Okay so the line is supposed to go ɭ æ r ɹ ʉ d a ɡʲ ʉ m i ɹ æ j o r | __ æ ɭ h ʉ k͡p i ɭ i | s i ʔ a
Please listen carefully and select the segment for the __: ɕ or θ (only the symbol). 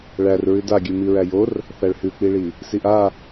θ